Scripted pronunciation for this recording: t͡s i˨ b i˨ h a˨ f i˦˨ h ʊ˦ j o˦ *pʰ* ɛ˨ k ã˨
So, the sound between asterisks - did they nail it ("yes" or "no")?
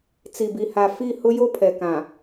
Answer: yes